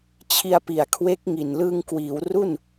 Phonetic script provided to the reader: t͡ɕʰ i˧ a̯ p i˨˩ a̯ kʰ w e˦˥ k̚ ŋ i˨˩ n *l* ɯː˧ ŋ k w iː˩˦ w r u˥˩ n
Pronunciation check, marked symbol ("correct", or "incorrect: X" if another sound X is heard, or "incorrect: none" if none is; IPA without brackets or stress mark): correct